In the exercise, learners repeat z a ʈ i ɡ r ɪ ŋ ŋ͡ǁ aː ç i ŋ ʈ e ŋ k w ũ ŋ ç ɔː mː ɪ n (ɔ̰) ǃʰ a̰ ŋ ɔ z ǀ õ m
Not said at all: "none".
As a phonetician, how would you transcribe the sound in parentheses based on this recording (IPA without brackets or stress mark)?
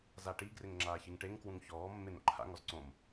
o̰